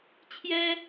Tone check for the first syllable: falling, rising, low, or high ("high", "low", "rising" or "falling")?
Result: high